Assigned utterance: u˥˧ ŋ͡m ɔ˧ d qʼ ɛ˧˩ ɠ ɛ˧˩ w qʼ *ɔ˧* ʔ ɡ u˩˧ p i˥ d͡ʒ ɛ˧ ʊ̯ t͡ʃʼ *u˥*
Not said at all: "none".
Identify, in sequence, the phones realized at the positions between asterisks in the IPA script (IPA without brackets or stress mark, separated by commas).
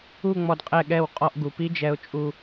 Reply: ɔ˧, u˧